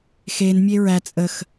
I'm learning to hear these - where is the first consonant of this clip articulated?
velum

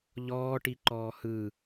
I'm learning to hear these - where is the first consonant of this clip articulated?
palate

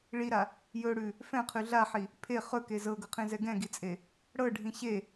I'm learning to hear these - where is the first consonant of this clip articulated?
retroflex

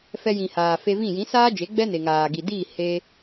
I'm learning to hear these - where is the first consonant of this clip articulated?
lips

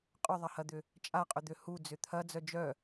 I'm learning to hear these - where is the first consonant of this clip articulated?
uvula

